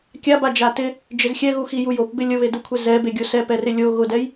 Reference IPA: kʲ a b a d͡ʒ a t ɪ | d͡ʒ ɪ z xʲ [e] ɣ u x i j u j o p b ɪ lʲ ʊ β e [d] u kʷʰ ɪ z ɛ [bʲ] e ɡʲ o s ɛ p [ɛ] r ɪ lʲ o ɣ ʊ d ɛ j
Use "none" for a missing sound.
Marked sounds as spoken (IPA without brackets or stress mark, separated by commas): ɛ, d, b, ɛ